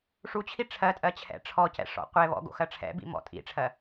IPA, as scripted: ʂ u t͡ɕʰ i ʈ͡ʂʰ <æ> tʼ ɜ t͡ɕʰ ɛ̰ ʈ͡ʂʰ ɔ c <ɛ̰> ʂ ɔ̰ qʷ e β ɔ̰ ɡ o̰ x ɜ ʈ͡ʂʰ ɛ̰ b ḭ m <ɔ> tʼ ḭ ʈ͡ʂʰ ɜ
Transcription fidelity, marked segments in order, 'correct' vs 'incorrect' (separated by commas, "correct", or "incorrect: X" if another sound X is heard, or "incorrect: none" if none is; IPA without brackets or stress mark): incorrect: ɜ, correct, incorrect: ɔ̰